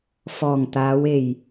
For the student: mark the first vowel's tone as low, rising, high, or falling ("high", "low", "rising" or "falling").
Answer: low